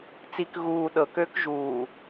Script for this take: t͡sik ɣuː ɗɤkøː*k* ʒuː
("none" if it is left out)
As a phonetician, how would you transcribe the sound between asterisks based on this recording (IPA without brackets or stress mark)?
k